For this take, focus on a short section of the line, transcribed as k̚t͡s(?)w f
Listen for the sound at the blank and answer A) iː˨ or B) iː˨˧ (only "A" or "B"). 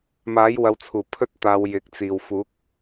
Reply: A